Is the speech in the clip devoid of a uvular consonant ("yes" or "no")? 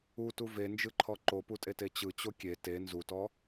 yes